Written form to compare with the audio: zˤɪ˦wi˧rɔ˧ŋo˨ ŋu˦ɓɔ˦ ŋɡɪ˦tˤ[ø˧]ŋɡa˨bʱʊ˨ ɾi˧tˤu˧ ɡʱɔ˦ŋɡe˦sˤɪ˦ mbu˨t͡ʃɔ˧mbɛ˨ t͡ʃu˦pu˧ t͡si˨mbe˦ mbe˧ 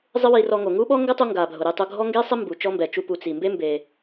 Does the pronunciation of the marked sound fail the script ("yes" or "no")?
yes